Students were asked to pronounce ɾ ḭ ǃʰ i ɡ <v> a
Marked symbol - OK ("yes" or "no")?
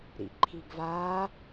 yes